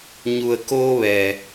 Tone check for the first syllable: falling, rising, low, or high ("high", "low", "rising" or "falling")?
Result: low